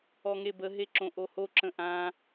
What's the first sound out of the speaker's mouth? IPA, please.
ɔ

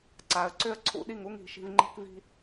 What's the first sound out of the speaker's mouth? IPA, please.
ǀ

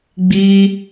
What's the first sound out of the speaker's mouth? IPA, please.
ɡ͡b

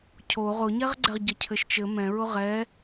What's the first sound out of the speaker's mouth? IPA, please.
cʰ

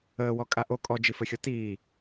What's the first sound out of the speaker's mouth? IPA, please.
əː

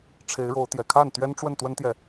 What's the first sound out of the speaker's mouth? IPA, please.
ʈ͡ʂʰ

